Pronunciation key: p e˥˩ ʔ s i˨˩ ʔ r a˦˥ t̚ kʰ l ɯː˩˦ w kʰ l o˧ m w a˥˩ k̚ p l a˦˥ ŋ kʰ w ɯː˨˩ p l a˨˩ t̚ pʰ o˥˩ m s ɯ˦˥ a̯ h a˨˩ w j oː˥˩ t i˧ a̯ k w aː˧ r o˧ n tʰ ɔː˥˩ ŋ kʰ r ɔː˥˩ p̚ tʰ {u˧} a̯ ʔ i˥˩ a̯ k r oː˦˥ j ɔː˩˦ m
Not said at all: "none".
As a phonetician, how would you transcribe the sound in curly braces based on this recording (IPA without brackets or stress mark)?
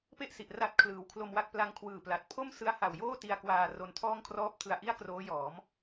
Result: ɯ˧